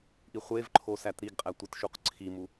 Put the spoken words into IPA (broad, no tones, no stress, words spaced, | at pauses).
ʔiχʷevǃʰo sætɾiɡqʼæ tʷitʃuqǀʰimu